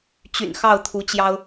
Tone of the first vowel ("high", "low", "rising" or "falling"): low